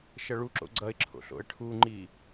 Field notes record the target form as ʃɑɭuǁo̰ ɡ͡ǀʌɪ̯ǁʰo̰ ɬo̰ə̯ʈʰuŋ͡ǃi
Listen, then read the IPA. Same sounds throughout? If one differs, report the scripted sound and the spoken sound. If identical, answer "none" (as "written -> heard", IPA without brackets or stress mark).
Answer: ɑ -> ʌ